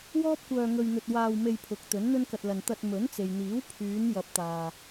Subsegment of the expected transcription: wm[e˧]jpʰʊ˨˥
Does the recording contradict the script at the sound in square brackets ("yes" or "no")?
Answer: no